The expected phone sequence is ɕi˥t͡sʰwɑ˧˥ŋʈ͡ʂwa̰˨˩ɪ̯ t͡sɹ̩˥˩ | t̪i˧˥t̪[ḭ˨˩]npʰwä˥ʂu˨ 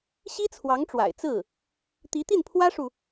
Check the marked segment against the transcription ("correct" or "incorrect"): incorrect